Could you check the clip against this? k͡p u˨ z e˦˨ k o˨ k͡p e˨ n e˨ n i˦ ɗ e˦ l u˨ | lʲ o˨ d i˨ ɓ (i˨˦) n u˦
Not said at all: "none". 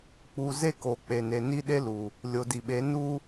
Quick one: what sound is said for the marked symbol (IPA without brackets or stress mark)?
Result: e˨˦